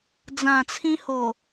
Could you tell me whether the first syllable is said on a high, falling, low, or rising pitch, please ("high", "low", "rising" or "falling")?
low